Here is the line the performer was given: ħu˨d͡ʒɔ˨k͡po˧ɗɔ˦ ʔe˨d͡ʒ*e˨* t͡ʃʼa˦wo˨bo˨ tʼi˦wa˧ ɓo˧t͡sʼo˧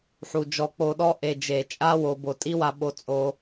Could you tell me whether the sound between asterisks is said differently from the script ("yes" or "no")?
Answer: no